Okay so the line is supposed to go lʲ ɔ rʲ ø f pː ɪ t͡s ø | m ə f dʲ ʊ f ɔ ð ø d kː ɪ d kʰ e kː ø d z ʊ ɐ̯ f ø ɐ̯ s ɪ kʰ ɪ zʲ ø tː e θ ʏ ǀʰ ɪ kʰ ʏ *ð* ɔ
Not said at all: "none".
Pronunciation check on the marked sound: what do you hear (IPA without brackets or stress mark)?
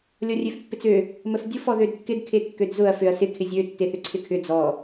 d͡z